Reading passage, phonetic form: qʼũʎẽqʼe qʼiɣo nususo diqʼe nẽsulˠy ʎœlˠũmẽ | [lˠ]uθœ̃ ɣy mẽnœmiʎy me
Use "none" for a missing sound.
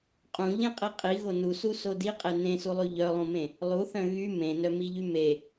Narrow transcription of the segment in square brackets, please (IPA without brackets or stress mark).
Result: lˠ